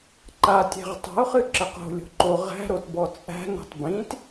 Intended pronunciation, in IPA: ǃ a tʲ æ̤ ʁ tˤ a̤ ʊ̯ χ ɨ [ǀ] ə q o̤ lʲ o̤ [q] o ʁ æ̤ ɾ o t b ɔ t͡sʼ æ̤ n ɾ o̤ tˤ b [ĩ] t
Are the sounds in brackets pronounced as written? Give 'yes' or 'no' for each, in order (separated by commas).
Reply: no, no, yes